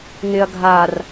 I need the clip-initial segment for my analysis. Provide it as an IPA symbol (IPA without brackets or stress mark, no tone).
ŋ